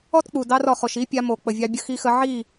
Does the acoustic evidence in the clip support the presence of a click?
no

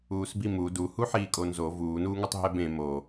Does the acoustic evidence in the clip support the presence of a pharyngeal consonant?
yes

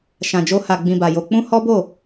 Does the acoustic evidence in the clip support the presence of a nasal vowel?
yes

